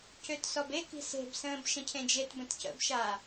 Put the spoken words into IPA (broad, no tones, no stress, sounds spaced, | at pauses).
c ø t s ɔ b e k i̤ s e̤ b s ə̃ː b ʃ ə̃ cʰ ẽ d͡ʒ e t b ə̃ t c ə̰ b ʃ a